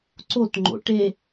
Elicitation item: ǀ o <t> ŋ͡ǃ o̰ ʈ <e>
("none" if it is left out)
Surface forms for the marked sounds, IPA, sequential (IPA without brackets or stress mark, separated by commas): t, e